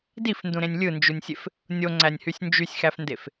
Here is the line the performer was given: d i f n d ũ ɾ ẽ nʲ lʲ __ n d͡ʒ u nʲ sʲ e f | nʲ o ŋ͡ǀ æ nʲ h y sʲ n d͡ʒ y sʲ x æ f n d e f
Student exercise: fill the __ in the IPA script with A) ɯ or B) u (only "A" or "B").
A